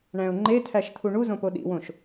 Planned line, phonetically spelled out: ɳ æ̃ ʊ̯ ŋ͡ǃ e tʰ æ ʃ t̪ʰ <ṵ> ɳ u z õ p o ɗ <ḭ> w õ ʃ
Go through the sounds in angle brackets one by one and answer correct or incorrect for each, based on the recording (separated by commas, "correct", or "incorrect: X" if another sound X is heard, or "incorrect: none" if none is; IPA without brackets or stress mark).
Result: incorrect: u, correct